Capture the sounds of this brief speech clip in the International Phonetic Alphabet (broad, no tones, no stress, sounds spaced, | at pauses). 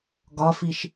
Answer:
ɡ ɒ f i ʃ